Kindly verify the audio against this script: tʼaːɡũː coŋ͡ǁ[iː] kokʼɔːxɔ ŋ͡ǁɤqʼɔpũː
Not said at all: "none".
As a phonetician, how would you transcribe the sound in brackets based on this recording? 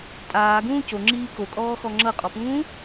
iː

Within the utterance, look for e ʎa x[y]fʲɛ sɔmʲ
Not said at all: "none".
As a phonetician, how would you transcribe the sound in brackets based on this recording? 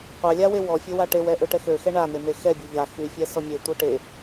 y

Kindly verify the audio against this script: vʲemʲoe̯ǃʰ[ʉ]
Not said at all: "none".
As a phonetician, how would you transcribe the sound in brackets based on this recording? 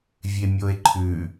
ʉ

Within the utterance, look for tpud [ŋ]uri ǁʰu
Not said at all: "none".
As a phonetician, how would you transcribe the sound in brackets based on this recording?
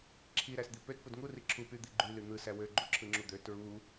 ŋ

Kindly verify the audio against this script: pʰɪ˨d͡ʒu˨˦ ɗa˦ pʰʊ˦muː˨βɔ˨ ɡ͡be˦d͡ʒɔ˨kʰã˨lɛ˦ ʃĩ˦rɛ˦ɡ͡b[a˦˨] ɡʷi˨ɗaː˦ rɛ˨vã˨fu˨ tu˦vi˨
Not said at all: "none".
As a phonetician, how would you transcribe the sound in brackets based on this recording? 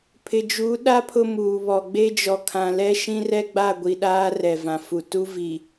a˦˨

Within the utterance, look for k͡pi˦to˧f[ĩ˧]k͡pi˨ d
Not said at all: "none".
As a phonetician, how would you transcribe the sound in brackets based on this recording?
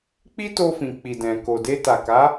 ĩ˨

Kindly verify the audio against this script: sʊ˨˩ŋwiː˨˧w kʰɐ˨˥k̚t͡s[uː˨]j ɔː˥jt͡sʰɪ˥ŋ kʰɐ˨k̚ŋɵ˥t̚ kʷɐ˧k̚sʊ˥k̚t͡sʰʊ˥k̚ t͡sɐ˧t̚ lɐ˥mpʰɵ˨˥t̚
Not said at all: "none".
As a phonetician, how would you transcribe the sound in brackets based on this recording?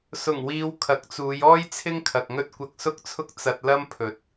uː˨˧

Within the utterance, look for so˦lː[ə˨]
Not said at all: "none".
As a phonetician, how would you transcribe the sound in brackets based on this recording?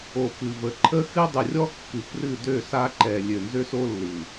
ɯ˨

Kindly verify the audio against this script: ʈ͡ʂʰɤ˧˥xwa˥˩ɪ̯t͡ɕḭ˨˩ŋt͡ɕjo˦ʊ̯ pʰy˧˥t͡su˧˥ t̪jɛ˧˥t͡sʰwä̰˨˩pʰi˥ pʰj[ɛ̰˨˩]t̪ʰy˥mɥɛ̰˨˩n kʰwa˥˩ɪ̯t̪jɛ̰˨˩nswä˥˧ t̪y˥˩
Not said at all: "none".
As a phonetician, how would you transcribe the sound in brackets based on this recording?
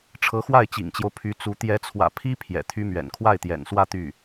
ɛ̰˨˩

